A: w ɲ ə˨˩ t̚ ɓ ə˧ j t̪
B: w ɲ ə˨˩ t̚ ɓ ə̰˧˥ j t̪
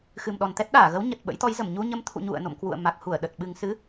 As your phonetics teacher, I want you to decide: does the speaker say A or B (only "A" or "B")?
B